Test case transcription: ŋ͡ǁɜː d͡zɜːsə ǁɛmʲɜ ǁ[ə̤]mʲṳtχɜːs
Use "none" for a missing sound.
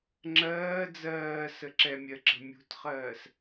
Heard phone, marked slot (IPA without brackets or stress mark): ə̤